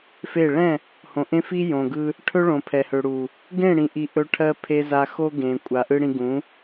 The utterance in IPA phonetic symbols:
f e˦˨ ɭ ɛ̃˦˨ | h õ˨ ʔ ẽ˦ f i˦ j õ˨ ɡ ɯ˧ | ʈʰ ɵ˦ ɭ õ˨ pʰ ɛ˨ h ø˨ ɽ u˨ | ɡ ẽ˦˨ ɽ ĩ˨ ʔ i˨ ʔ ɵ˧ ʈʰ ɜ˧ pʰ e˧ z a˧ x o˦ ɡ ẽ˨ kʷʼ a˨ ʔ ɯ˧ ɽ ĩ˧ ɡ ũ˨˦

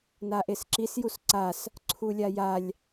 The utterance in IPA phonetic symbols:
n a ʔ e s ǁ i s j u s ǀ a s | ǀʰ u lʲ a j a lʲ

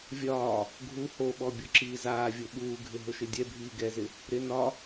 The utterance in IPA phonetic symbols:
vʲ ɒː | ɡʱ u h o ɓ ɔ bʲ o ǁ iː z aː vʲ o ɓ uː ɡʱ ɪ ɦ ʊ ʃ ɪ dʲ ɛ bʱ iː ɡ ɛ z ɪ | ɾ ɪ n ɒ

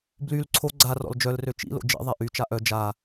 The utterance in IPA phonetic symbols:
b l y l ǀʰ o ɡ͡ǀ a r ɔ̰ l d͡ʒ œ l r ø t͡ʃ ḭ l o̰ d͡ʒ ḭ ðˤ ɛ ʔ y t͡ʃ a ʔ œ d͡ʒ a

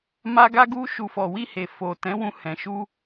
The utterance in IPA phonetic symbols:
m a˧ ɡ a˧ ɡ u˧ ʃ u˨ f ɔ˨ w i˧ h e˨ f o˨ t ɛ̃˨˦ w ũ˧ h ɛ̃˨ ʃ u˧

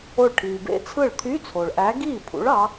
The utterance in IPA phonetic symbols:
o˧˩ ɭ ʈʰ iː˩ b ḛ˦˥ t͡sʰ ɯ˥˩ ɭ t̪ʰ y˧˥˧ t͡sʰ o˩ ɭ ʔ æ˨˥ ɡ iː˥˩ pʰ ṵ˨˥ ɭ ɑ˨˥

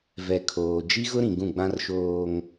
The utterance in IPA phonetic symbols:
v ɛ˨ kʰ oː˨ d͡ʒ i˦ ɣ ʊ˦ ɾ ĩ˨ ɡ ũ˦˨ ɡ͡b ã˦ r ʃ oː˦ ŋ

